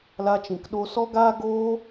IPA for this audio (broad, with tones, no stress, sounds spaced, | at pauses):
l a˧ t͡ʃ ĩ˨ k ɗ o˧ s ɔ˦ ɡ aː˦ ɡ oː˧